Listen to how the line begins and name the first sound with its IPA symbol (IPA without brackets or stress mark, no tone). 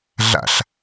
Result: ɮ